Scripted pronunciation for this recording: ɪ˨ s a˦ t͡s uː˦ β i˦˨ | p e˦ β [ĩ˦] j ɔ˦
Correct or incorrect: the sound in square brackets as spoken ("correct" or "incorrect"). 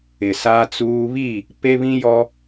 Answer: correct